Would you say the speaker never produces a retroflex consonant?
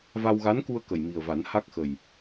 yes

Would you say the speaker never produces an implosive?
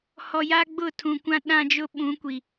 no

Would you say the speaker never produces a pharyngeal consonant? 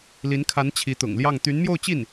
yes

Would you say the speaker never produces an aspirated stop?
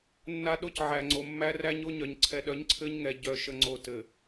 no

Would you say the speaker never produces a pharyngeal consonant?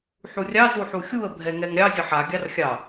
no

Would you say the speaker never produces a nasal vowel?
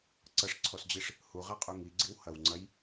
yes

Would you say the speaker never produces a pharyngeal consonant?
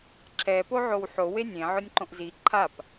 no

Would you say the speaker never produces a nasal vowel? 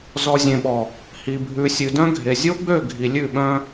no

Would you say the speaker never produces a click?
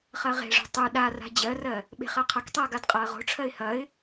yes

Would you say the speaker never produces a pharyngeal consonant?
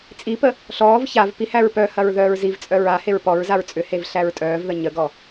yes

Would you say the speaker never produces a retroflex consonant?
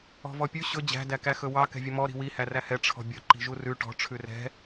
no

